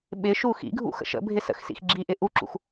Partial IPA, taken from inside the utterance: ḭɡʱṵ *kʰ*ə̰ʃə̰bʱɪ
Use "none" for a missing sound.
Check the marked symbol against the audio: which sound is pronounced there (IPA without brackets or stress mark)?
x